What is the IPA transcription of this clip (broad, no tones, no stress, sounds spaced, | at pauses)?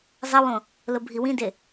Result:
zˤ ɐ w õ | l o bʱ i w ĩ d e